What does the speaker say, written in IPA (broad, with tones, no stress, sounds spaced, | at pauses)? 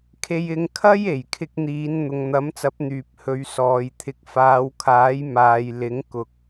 kʰ e˧ j ɪ˧ ŋ kʰ ɐ˥ j e˨˩ j kʰ ɪ˧ k̚ n̪ iː˨˧ n n̪ ʊ˨ ŋ n̪ ɐ˨˥ m t͡s ɐ˨˥ p̚ n̪ yː˨ p̚ h ɵ˨˧ ɥ s ɔː˨ j t̪ʰ ɪ˨ k̚ f aː˨˧ w kʰ aː˨˥ j m aː˨ j l ɪ˨˥ ŋ k ʊ˨ k̚